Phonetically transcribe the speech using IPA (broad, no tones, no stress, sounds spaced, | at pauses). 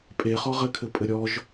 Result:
pʼ e χ ɔ ʁ ɘ kʰ ɘ pʼ ɘ ɾʲ ɔ ʒ